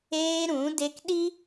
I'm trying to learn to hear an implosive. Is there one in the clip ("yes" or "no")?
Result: yes